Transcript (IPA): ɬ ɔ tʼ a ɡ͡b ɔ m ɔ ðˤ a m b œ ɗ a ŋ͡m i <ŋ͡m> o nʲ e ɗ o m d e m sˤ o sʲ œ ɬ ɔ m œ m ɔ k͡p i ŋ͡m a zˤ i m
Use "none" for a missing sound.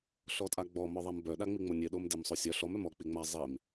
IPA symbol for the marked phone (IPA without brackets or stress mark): ŋ͡m